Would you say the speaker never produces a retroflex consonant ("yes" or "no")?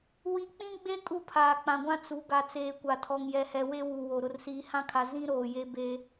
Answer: yes